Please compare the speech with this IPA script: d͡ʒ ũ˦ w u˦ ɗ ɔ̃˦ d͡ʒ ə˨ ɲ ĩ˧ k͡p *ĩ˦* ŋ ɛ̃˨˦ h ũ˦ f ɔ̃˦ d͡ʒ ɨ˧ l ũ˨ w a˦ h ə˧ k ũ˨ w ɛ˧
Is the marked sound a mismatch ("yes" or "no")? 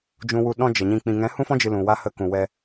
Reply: yes